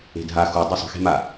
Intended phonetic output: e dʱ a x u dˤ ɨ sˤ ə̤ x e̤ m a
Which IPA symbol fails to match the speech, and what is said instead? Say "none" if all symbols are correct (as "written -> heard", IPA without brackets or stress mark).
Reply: e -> e̤